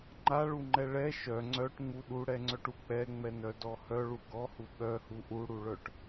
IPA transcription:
ŋ͡ǃaɭuŋ͡ǃɛ ɭɛ ʃœ ŋ͡ǀœʈŋ͡mu ɗuɽɛŋ͡ǀœʈu k͡pɛŋ͡mɛnœdɔ hœɭu ɡɔhu ɓœhu ʔuɽuɭœʈ

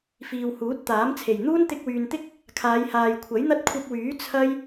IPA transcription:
fiː˨whuː˨˥t̚ t̪aː˨˥mt͡sʰe˨˩j n̪uː˥nt̪ɪ˧k̚wyː˨nt̪ɪ˥k̚ | kʰaː˨˧jhaː˨jkʷʰɐ˨˥jn̪ɐ˥t̚ kʷʰɐ˧p̚wyː˨˥ t͡sʰɐ˥j

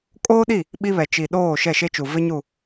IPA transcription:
kʼoː˦ɗi˦˨ | ɓi˦βɛ˨ t͡ʃi˨ɗoː˦˨ ʃɛ˦˨ʃe˦t͡ʃu˨ vɪ˦ɲu˦˨

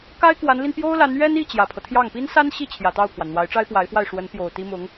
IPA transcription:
ka˥ɪ̯kwa˧˥nli˧n pjo˥ʊ̯la˧˥n ɥɛ˥ni˥˩ t͡ɕjä˨˩pʰɤ˦t̪ʰjɑ˥˩ŋ pi˥nsa˥n ɕi˥˩ t͡ɕʰjä˨˩t̪ɑ˥˩ʊ̯pʰwa˩n n̪wa˧˥ɪ̯ʈ͡ʂa˥ɪ̯pwa˧˥ɪ̯fwa˥˩ɪ̯ ʂwə˧˥npjo˨˩ʊ̯ t̪i˥mʊ˧˥ŋ

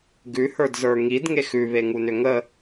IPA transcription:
ɡʉhə˞dzə˞ ŋidŋex ʉβeŋunʏ ŋə

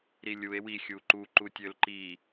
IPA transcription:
ɾilʲue̯ wi xʲuǃu ǃutʲølǃi

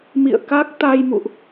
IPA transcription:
mḭ˧˨ə̯ ka˦˥k̚ t̪a˧jmṵ˧˨ʔ

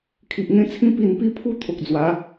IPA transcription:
kʰi˨ʔŋẽ˦t͡sʰĩ˦ pi˨˩npi˧pʰu˧ t̪ʰo˨k̚d͡zwa˨˦

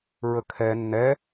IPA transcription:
ɹəkʰɛ nːɛ

